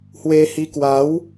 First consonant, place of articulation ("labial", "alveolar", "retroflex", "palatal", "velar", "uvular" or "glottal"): glottal